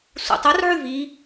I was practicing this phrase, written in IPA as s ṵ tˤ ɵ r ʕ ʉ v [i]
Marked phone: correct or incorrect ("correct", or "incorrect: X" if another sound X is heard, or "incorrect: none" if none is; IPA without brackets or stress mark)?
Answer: correct